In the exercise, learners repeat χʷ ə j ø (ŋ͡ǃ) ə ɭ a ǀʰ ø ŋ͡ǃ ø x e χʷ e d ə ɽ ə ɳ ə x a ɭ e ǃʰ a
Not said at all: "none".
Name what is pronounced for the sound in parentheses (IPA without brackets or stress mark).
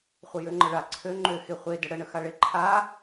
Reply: ŋ͡ǃ